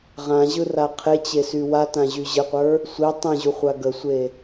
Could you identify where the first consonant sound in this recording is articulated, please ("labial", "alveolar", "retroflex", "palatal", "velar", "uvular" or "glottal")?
uvular